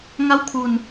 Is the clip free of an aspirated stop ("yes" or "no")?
no